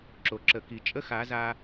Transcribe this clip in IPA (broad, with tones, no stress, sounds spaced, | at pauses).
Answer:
ǁ o˨ ǁ ə˨ k i˨ t͡ʃʼ ə˦ x a˨˦ z a˧